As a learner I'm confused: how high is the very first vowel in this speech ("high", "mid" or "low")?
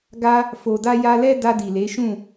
low